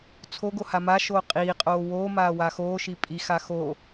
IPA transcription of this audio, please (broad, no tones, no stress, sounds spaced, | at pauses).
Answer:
t͡sʰ o ɡ o h a m a ʃ oː qʼ iː qʼ oː w oː m aː w a x oː ʃ i pʼ i x a x o